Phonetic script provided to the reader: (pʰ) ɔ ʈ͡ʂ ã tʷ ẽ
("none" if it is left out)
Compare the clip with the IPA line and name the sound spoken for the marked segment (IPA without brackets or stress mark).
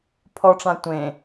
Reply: pʰ